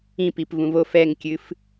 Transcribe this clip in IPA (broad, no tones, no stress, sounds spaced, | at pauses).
ĩ p i p v ũ v o f ɛ ŋ kʲ ɨ f